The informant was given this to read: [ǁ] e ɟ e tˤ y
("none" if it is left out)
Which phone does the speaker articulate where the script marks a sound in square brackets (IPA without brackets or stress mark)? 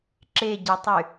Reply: ǁ